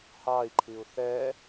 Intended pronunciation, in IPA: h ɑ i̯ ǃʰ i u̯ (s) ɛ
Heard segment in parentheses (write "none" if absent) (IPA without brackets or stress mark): θ